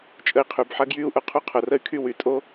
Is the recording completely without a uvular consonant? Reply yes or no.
no